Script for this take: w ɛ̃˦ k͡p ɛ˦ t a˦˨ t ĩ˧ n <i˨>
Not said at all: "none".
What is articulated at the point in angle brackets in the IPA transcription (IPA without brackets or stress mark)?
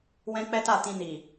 i˨